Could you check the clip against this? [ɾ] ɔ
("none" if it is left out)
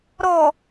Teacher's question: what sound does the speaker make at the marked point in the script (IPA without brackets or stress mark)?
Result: ɾ